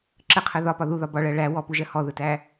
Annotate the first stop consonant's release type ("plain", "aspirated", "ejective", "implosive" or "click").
click